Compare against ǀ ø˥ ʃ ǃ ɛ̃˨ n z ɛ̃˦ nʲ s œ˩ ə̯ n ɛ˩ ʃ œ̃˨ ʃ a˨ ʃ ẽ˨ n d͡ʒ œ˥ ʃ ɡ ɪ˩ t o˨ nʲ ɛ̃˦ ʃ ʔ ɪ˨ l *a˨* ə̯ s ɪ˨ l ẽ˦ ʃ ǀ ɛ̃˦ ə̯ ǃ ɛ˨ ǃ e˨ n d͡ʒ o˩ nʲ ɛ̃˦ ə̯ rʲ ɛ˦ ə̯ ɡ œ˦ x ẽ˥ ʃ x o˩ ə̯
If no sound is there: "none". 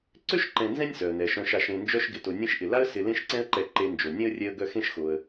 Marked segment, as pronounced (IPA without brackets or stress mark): a˥